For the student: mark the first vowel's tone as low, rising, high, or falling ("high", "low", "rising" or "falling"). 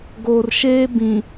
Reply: low